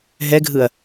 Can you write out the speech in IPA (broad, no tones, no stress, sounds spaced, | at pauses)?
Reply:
ɦ ɛ ɡʱ ɯ ɐ̯